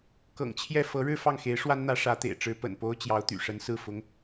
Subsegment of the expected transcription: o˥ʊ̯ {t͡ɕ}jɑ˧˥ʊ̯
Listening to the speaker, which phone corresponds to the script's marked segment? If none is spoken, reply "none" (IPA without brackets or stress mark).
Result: t͡ɕ